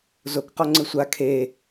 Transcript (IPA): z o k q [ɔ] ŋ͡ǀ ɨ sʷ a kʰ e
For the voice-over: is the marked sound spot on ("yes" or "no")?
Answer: yes